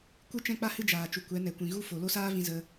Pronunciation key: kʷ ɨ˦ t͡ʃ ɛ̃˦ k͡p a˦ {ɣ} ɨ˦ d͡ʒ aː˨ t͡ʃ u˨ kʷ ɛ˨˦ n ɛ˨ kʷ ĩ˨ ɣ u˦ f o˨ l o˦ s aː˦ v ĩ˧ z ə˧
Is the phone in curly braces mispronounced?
yes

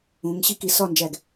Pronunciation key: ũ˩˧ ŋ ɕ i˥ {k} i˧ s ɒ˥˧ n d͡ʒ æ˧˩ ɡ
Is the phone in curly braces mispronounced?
no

